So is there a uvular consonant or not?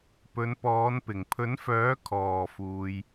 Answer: no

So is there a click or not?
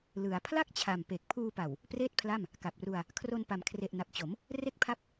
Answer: no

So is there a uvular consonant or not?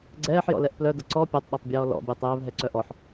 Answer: no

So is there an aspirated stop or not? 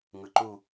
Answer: no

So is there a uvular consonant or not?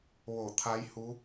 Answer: no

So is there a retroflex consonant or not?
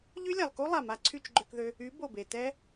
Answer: no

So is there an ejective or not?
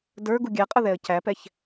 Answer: yes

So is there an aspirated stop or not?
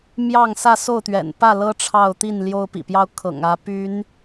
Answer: yes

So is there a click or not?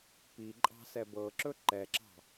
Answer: yes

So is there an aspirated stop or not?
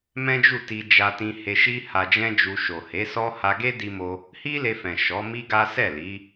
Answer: no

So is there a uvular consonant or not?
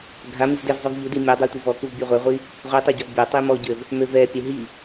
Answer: yes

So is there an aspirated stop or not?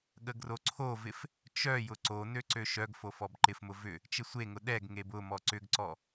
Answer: yes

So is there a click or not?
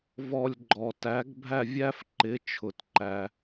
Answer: yes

